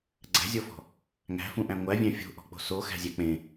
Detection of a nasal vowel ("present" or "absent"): present